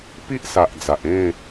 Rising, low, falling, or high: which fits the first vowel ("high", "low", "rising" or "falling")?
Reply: high